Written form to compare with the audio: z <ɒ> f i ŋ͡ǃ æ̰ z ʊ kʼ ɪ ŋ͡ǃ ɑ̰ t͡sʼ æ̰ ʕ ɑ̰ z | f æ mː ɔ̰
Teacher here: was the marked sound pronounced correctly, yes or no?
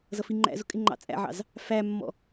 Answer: no